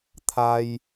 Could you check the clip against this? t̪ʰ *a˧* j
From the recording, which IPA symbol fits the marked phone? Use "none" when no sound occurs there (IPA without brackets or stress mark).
a˧